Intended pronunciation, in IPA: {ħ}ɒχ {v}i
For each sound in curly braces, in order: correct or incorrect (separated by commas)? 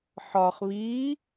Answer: correct, incorrect